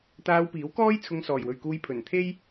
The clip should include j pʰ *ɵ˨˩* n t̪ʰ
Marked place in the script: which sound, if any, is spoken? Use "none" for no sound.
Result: ɵ˨˩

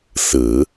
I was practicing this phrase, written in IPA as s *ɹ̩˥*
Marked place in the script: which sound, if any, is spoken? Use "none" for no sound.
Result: ɹ̩˨˩˦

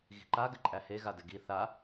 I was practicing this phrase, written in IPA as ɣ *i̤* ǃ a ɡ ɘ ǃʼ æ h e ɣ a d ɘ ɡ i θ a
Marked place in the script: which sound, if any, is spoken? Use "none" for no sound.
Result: i̤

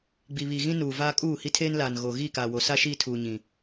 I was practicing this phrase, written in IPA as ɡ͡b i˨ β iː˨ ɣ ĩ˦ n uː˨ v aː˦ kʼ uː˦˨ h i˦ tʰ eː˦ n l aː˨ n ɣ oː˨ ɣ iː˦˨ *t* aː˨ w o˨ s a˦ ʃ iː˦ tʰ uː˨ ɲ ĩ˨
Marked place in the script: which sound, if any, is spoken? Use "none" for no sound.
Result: k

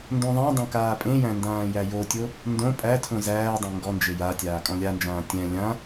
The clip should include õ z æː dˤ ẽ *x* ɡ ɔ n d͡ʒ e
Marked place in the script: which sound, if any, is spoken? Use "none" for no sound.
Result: ŋ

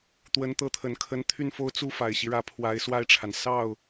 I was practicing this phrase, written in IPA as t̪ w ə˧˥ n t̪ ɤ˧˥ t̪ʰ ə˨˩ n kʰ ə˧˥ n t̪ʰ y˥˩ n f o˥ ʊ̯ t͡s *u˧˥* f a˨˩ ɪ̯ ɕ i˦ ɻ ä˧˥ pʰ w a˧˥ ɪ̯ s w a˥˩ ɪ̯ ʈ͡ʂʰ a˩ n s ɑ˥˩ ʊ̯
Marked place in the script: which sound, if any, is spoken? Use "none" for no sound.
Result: u˥˩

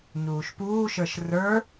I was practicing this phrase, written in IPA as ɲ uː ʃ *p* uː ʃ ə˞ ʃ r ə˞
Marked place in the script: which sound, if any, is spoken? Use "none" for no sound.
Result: p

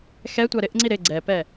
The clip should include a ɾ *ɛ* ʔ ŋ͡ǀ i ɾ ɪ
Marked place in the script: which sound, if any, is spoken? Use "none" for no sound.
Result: ɪ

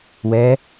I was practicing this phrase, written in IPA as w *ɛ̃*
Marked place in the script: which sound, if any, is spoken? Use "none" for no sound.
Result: ɛ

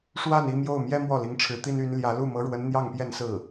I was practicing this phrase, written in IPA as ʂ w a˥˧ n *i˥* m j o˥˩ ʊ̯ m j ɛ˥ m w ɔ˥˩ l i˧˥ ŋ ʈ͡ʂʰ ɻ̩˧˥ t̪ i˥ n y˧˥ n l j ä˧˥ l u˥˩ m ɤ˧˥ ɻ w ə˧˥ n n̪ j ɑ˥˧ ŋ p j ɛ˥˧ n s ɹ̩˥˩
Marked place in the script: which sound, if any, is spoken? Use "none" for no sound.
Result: i˥˧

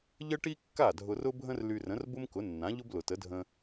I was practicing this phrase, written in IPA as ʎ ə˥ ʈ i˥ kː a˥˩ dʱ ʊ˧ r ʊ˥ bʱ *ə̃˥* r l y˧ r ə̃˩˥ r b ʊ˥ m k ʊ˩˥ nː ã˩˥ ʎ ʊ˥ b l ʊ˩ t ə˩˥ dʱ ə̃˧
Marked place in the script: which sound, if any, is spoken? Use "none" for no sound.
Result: ə̃˥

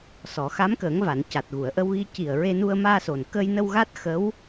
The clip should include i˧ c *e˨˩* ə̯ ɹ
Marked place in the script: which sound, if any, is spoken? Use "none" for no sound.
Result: i˨˩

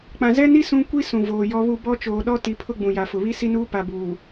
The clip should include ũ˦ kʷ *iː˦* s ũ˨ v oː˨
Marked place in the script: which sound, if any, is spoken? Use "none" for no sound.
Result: i˦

